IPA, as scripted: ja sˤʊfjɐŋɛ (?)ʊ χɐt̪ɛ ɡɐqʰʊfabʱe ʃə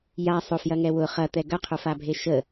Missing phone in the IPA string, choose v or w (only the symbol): w